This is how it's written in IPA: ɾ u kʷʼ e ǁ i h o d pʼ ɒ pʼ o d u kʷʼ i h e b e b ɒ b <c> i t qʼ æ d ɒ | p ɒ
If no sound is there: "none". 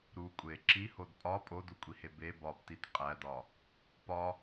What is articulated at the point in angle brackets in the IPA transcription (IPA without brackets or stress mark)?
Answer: t